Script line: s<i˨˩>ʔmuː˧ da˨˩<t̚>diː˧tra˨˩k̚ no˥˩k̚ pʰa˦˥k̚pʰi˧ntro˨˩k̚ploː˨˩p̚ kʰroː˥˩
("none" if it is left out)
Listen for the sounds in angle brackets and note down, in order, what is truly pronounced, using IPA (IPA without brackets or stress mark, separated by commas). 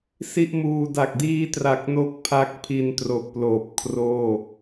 i˥˩, k̚